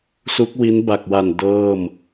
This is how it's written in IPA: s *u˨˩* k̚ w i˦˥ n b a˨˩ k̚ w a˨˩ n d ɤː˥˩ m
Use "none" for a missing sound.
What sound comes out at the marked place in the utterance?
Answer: u˦˥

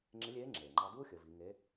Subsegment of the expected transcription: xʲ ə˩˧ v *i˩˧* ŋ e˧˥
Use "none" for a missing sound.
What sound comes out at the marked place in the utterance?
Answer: i˩˧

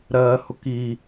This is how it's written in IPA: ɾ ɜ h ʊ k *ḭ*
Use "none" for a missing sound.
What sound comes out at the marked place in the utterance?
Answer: i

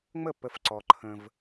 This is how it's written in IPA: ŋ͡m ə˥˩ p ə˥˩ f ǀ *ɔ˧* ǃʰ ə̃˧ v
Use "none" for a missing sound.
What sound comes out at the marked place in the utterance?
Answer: ɔ˧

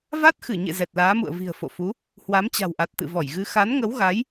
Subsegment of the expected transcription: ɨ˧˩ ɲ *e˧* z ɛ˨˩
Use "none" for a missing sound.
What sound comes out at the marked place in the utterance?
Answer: ḛ˧˨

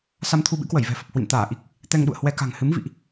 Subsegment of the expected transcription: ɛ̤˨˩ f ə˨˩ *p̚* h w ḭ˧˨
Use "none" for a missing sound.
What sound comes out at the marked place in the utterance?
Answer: p̚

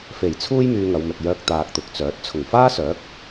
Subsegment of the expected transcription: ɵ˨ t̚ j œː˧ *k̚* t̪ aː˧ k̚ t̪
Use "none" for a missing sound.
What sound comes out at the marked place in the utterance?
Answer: k̚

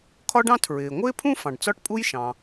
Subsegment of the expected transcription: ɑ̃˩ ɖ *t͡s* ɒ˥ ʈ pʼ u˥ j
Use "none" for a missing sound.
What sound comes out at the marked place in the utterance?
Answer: t͡s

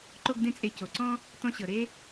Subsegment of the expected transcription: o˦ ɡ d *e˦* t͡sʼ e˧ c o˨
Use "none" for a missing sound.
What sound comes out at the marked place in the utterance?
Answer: ẽ˦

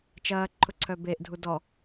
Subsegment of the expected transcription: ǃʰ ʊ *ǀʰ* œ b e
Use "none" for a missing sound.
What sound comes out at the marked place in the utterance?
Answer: ǀʰ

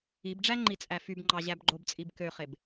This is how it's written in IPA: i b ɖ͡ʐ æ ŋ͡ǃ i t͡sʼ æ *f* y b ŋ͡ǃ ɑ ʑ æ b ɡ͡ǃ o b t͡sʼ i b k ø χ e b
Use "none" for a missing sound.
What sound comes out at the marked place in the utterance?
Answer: f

